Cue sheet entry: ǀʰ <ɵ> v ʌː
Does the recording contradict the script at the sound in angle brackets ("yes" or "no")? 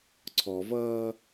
yes